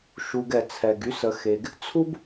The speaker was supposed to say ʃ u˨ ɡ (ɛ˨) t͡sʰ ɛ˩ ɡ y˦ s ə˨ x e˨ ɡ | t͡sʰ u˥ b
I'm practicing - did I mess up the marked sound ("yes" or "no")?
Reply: yes